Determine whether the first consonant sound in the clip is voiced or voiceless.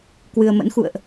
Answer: voiceless